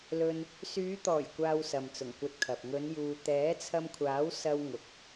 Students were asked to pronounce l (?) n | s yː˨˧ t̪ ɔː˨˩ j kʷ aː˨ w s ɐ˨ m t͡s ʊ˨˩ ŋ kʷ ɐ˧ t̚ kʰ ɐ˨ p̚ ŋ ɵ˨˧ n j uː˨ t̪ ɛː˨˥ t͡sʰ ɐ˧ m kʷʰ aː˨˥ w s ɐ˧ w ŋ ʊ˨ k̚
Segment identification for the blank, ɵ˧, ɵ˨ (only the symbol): ɵ˧